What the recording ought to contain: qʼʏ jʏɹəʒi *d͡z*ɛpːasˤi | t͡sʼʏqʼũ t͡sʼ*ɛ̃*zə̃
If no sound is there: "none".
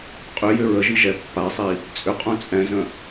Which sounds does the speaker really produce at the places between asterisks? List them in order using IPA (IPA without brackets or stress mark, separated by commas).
ʒ, ɛ̃